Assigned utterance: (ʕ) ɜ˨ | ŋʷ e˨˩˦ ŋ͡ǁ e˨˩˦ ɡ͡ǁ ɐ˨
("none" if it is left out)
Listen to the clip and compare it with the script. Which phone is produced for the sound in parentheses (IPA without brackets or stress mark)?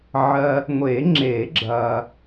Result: ʕ